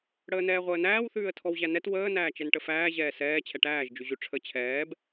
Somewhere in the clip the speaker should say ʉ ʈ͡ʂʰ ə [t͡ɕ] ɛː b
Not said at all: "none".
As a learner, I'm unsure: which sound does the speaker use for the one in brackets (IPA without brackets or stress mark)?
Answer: t͡ɕʰ